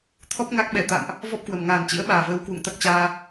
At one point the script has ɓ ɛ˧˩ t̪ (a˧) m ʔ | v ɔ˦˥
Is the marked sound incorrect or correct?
incorrect